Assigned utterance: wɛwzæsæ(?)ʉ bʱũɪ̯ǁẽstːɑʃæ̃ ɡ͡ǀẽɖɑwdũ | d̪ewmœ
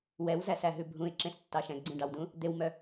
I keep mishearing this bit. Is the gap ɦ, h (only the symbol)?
ɦ